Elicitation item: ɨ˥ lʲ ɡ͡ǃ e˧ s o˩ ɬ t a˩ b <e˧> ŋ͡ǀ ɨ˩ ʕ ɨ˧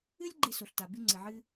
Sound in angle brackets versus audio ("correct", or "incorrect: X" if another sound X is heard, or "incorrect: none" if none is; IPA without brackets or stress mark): incorrect: ɨ˧